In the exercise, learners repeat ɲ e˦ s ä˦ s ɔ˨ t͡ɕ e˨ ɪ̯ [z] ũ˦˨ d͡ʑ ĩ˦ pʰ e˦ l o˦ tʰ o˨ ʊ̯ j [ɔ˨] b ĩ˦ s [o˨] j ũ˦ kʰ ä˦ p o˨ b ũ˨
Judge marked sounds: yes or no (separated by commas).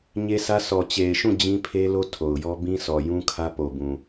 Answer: no, no, no